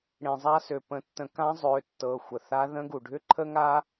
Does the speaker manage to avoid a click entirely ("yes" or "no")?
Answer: no